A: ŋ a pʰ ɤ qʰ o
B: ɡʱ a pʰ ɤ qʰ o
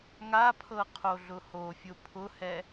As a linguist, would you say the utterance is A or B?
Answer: A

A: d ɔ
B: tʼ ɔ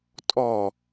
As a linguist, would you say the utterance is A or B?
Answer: B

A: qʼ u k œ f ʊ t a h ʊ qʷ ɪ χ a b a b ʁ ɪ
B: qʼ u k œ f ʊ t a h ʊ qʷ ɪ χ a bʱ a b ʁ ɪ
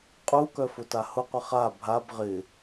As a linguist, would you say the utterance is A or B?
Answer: B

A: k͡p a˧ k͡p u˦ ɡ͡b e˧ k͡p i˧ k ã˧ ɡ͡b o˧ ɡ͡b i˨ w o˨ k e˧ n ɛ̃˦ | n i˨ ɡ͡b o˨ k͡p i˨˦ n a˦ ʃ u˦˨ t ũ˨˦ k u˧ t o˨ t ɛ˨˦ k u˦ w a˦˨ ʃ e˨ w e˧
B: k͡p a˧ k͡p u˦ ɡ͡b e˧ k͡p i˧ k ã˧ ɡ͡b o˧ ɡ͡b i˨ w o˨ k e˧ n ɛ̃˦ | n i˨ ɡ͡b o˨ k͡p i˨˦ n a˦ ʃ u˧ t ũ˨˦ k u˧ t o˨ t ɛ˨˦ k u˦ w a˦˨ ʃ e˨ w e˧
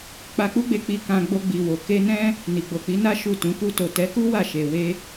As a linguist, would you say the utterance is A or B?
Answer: A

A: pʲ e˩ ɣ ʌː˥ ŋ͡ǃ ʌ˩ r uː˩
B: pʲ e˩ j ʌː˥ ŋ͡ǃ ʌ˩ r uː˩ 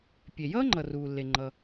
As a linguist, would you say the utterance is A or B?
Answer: B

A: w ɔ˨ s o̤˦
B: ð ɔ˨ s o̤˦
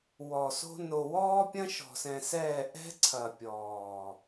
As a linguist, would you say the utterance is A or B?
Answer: A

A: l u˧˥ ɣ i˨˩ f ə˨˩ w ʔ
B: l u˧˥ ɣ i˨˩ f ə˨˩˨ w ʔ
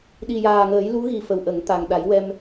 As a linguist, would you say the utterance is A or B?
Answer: A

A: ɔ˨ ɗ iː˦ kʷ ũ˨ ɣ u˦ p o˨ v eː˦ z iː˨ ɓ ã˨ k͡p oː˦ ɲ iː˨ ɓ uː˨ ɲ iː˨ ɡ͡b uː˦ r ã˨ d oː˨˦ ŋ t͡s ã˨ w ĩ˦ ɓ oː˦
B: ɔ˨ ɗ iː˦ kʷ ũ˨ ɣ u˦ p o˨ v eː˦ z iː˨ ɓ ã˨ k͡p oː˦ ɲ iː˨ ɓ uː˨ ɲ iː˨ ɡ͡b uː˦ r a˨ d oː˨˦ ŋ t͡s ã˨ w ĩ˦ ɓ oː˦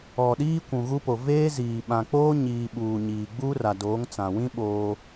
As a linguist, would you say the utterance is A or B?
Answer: B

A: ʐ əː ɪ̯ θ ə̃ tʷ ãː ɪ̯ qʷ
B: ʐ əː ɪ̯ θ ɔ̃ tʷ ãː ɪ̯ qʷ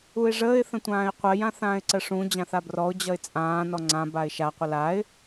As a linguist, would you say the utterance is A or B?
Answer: A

